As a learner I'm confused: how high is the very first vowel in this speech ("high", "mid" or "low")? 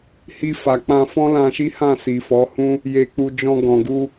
high